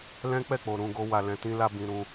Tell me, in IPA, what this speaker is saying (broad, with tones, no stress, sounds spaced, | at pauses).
l ɛ̃˦ k͡p ɛ˦˨ k͡p o˨ ɾ ũ˧ ɡ o˧ w a˨ l ɛ̃˨ t ĩ˧ l a˧ b ĩ˧ ɾ ũ˧